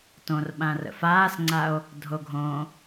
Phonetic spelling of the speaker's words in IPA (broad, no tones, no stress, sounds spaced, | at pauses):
t õ r ɓ ã r ə̰ f aː s ŋ͡ǀ a o̯ | dʱ o ɡʱ õ